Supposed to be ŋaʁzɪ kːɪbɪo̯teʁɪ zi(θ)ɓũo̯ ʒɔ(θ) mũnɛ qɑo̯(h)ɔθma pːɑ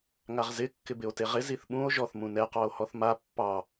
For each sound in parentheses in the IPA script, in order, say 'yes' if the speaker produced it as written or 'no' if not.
yes, yes, yes

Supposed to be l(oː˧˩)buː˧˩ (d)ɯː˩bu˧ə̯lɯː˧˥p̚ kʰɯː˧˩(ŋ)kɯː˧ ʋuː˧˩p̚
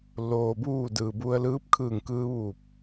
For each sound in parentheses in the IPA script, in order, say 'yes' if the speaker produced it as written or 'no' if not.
no, yes, yes

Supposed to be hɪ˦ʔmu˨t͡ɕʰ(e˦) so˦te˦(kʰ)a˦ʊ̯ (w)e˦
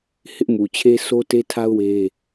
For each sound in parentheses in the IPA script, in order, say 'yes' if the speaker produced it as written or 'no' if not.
yes, no, yes

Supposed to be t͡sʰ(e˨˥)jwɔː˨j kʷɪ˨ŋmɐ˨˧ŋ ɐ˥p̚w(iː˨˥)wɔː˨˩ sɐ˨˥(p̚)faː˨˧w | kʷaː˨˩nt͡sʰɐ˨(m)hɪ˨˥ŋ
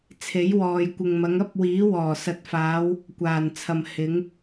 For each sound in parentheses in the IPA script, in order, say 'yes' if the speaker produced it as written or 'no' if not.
yes, yes, no, yes

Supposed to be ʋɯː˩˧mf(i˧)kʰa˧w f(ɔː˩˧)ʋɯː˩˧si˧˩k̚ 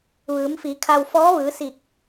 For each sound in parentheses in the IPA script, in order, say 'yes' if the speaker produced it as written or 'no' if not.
no, no

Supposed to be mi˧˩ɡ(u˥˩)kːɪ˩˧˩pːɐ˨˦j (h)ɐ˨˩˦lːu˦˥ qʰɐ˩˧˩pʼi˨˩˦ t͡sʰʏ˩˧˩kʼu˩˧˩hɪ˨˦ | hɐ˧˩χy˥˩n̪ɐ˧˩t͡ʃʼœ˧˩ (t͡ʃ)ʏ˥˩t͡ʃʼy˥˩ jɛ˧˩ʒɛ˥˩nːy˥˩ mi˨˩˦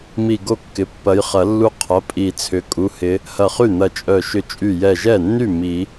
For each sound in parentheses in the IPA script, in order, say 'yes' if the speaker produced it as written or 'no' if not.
no, no, no

